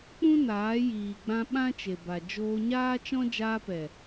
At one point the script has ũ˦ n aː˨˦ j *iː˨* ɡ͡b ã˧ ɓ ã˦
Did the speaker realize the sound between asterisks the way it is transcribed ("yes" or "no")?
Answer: yes